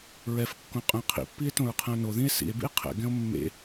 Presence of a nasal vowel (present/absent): present